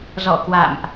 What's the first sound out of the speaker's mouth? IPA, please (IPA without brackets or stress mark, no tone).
z